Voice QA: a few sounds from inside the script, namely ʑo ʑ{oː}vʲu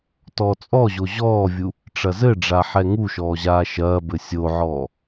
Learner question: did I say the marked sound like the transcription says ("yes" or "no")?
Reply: no